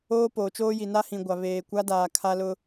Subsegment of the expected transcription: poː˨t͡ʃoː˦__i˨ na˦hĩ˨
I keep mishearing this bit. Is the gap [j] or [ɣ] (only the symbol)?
j